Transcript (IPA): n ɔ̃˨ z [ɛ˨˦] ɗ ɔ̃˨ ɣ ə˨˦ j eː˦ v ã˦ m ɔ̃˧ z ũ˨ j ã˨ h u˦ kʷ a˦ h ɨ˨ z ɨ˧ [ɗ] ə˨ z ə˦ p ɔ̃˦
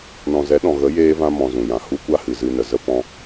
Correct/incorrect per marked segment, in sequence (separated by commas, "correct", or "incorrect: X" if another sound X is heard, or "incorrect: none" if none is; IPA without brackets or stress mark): correct, incorrect: n